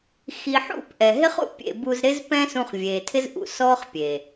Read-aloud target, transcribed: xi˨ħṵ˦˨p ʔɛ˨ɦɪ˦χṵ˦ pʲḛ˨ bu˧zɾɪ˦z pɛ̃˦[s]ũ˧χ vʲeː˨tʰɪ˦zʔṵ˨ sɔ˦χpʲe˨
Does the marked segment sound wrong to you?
no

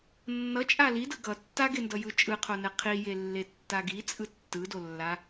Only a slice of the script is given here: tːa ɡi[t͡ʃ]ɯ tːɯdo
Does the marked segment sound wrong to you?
yes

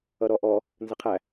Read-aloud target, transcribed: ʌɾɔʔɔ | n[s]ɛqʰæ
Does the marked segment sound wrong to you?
yes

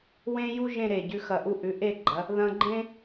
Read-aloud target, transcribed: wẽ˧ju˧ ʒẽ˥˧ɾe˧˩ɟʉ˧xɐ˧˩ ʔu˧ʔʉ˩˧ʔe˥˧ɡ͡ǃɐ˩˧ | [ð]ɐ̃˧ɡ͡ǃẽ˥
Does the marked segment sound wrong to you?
no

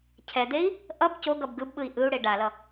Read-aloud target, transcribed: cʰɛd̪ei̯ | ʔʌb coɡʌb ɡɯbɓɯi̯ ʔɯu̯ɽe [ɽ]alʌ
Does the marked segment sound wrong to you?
yes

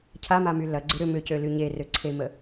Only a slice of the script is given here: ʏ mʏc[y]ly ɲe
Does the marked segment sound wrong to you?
yes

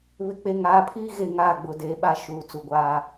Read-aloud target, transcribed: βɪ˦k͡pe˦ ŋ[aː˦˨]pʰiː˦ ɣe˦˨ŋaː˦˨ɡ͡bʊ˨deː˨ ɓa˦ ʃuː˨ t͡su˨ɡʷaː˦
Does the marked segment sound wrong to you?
yes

